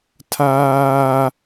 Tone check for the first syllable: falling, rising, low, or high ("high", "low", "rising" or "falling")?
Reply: high